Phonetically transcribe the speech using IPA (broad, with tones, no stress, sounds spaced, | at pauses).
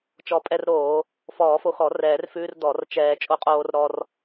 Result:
t͡ʃ ɔ˨˩˦ pʼ ɛ˧ r ɾ oː˨˩˦ | f ɔː˨˩˦ f o˧ x ɔ˨˩˦ r ɛː˨˩˦ r f ʉː˧ r d ɔ˨˩˦ r t͡ʃ ɛː˧ t͡ʃʼ o˧ qʼ oː˧ r ɾ ɔ˧ r